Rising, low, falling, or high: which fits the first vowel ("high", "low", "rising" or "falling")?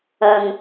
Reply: low